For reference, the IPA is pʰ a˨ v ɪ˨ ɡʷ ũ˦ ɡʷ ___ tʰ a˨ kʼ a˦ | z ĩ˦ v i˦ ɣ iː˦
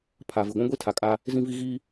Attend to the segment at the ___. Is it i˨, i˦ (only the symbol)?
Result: i˦